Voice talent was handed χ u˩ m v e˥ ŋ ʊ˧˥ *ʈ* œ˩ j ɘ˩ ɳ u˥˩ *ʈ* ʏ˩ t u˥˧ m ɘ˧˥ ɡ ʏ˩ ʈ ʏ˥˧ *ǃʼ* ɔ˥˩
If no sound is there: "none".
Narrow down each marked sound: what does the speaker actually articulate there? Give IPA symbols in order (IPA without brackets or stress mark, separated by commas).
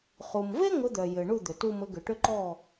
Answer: d̪, d̪, ǃ